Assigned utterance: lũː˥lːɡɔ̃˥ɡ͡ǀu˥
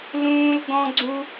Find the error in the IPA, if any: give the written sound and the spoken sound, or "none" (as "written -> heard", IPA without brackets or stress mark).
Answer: lː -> l